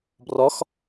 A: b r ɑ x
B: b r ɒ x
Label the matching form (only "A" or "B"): B